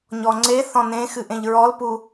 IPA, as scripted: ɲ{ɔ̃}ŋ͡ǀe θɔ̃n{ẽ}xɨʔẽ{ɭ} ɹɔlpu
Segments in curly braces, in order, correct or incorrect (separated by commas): incorrect, correct, incorrect